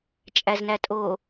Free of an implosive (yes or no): yes